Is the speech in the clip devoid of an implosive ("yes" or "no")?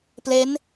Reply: yes